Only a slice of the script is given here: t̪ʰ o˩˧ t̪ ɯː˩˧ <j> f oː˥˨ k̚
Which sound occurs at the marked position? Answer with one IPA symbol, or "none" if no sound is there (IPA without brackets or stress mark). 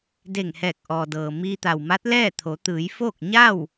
j